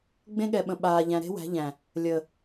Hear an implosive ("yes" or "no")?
yes